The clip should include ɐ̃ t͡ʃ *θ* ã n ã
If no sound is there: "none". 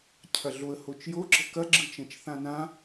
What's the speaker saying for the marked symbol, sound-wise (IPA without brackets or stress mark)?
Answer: θ